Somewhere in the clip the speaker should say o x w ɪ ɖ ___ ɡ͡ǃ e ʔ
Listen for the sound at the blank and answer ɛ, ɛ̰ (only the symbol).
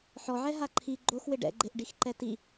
ɛ̰